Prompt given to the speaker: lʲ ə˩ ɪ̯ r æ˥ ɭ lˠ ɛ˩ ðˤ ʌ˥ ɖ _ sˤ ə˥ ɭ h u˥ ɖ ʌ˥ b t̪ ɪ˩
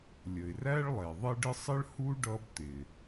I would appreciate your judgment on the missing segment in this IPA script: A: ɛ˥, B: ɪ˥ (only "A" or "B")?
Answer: B